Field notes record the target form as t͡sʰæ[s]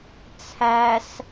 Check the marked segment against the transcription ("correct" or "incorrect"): correct